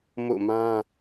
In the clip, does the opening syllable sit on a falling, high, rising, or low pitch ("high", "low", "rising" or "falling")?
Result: falling